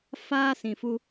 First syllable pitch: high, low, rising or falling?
high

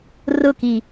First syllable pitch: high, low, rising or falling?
falling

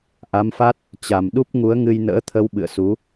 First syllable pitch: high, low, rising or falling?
rising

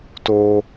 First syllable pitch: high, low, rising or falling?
high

